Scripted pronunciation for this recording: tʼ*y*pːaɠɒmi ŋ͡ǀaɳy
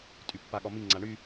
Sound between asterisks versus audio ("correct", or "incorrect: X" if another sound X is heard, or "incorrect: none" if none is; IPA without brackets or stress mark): correct